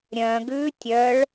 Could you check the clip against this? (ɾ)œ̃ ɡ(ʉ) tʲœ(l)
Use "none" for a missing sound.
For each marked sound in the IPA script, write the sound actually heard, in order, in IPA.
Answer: ɾʲ, ʉ, ɭ

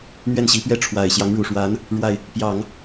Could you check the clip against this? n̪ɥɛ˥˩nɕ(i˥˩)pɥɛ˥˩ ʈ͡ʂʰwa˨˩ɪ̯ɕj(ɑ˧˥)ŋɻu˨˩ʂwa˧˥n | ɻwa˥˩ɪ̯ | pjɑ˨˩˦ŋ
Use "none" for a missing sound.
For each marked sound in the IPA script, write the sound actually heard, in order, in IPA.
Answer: i˧˥, ɑ˧˥

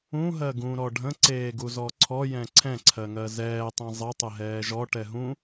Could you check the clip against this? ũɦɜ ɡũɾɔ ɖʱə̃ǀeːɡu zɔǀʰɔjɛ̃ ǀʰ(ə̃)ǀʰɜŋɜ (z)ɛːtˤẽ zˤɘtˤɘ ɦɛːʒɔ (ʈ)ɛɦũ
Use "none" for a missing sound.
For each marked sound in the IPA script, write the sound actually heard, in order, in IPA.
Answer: ɛ̃, z, ʈ

